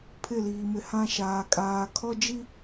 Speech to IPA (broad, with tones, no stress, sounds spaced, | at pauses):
pʰ ɪ˦˨ l iː˨ m ɪ˨ h ã˦ ʃ aː˨ kʼ aː˨ kʰ ɔ˦ d͡ʒ i˦